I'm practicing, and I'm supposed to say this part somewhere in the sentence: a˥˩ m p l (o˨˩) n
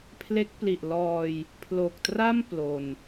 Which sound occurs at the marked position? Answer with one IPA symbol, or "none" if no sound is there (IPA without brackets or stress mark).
o˧